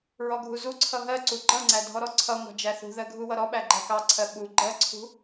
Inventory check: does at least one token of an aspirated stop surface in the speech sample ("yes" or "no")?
yes